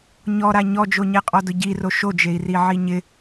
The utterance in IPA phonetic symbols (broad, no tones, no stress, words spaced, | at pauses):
ɲɔɾa ɲɔd͡ʒoɲɛqʼɔ dʊɟiro ʃod͡ʒei̯ri ʕiɲɪ